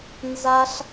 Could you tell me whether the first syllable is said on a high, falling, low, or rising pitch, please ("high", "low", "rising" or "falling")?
high